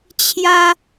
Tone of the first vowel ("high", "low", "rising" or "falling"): high